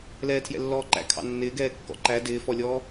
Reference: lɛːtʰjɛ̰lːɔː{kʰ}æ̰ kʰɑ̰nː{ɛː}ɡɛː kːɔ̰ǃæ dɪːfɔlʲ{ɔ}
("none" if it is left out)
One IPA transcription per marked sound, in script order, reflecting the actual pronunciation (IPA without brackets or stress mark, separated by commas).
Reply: ǃ, ɪː, ɔː